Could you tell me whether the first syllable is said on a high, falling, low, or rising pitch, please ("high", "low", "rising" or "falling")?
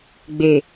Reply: low